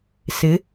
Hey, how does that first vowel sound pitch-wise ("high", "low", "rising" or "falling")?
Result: rising